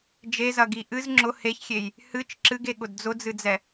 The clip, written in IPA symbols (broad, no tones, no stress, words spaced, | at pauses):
d͡ʒezɐɡi ʔɨz ŋ͡ǁʊ heçxʲej | hɨt͡ʃ ǁɨɡeɠʊd d͡zʊd͡zɨd͡zɛ